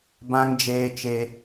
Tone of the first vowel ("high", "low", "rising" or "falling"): high